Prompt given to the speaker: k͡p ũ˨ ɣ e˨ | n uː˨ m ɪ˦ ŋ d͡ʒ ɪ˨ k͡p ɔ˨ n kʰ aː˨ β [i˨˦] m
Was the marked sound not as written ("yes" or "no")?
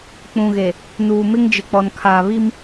yes